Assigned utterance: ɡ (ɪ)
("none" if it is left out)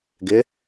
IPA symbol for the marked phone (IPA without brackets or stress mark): ɪ